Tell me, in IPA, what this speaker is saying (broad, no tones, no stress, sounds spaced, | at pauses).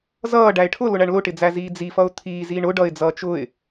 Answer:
z ʌː ɖ æ ɪ̯ ʈʰ ʊ l ʊ ɳ æ ɳ l ʊ ʈ ɪ d͡z æ z iː d͡z i f ʌ ʊ̯ t̪ʰ iː z iː ɳ ʊ ɖ ʌ ɪ̯ d͡z ʌː t͡ʃ ʊ ɪ̯